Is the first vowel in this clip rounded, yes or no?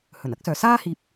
yes